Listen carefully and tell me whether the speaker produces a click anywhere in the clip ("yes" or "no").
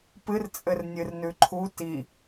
yes